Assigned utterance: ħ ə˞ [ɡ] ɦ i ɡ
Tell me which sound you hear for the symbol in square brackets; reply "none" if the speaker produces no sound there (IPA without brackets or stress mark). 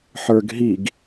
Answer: ɡ